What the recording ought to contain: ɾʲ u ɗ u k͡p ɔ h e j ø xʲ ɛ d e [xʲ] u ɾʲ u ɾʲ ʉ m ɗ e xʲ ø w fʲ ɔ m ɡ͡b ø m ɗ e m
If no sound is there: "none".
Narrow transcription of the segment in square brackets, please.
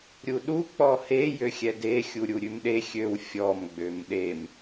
xʲ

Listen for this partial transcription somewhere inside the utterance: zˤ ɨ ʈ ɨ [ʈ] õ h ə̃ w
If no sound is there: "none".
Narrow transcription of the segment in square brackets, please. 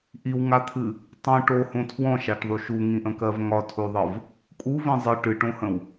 ʈ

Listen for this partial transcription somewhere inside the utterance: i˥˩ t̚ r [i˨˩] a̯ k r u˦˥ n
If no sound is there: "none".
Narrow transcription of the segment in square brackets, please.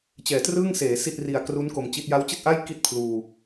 i˨˩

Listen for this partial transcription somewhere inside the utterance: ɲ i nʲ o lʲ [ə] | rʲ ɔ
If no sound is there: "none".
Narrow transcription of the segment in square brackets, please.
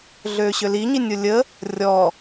ə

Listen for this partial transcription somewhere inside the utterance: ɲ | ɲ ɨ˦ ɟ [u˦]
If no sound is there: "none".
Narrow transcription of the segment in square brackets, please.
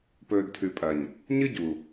u˨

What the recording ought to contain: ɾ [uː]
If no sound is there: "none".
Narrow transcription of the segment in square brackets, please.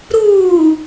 uː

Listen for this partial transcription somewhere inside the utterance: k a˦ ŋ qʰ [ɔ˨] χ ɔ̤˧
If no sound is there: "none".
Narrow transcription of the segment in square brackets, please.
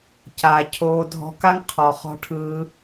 ɔ˨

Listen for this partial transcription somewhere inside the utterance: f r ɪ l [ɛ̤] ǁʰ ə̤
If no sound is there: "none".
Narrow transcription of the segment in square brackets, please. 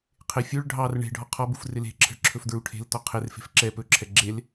e̤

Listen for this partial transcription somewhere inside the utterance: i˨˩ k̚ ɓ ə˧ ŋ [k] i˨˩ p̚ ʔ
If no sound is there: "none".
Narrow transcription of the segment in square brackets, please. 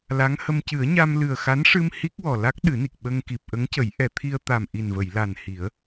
k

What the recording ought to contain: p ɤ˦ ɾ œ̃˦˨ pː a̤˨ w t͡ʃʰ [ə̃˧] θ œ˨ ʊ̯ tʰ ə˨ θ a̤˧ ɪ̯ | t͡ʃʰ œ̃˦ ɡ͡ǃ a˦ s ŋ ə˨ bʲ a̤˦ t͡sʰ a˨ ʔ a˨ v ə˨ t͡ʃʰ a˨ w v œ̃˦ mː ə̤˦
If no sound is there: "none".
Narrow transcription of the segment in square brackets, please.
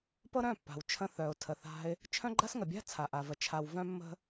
ə̃˧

